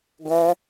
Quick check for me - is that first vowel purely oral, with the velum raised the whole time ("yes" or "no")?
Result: no